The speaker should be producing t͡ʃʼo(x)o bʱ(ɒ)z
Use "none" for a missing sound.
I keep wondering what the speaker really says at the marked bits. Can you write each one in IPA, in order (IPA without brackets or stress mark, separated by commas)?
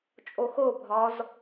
x, ɒ